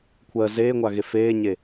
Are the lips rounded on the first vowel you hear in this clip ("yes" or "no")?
no